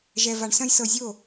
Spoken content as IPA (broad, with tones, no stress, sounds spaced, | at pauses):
ʒ ɛ˧ v a˧ ɳ s ɐ̃˦ j s ɤ˧ zʲ o˦˨